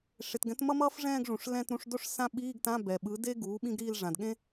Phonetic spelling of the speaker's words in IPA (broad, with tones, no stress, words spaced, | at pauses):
ʂe˩tɡɛ̃˩˥tmʌ˥mʌː˥f ʐɛ̃ː˥˧ɡʐũ˩ʂ lɛ̃˥˧tɾũ˧˥˧ʂ do˥˧ʂsã˥˧ɓiː˧˥˧ɡtã˧˥˧ bɛ˩ɓɯ˩˥ de˥ɡuː˩˥ ɓĩ˥ɡɾiː˥˧l ʐã˩dɠẽ˥